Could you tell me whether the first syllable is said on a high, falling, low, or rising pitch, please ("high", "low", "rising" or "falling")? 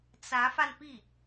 rising